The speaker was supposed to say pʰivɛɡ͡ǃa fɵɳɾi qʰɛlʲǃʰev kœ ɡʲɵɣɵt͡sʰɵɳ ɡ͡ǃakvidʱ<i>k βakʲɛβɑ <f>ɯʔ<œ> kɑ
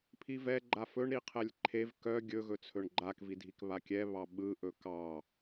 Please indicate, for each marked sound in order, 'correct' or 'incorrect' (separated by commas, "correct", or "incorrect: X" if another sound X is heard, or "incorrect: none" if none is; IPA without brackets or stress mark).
correct, incorrect: ɓ, incorrect: ɵ